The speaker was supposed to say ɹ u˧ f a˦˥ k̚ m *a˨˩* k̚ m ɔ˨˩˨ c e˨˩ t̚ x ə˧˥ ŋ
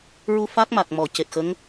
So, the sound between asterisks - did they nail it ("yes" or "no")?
yes